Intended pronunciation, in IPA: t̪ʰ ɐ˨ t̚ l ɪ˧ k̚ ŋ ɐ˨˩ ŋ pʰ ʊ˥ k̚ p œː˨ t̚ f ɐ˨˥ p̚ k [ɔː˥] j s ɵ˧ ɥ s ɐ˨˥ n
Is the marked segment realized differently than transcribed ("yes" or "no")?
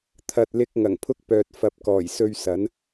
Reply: yes